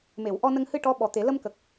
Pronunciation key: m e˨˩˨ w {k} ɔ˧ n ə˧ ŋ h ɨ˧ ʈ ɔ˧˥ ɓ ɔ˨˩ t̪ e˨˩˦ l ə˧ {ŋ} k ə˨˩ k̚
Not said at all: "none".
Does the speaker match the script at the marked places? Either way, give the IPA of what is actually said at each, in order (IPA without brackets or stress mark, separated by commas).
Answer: ʔ, m